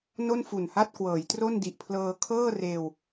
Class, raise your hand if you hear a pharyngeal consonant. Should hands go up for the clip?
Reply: no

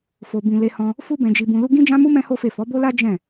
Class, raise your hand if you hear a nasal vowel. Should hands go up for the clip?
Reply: yes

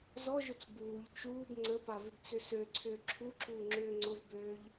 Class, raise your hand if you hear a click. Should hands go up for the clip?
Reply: yes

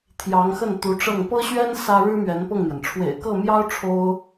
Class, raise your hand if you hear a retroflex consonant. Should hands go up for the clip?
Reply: yes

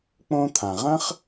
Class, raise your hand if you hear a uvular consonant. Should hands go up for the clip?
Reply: yes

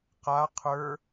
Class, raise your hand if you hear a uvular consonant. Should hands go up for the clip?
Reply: yes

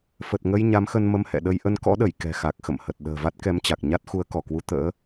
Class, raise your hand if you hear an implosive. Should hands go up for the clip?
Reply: yes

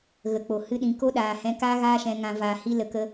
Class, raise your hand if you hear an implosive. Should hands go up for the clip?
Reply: yes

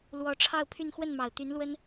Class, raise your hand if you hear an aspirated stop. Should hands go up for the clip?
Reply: yes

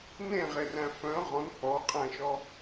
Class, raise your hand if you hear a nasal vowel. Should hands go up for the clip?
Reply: yes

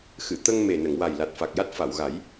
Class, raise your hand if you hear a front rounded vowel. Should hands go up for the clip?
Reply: no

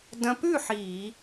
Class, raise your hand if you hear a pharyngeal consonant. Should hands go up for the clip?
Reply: yes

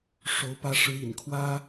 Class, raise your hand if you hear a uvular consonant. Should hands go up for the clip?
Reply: no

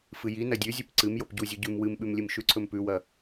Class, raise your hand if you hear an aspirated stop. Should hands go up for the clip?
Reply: yes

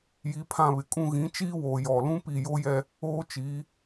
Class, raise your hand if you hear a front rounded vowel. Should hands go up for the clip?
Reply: no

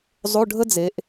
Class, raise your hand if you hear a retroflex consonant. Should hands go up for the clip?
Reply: yes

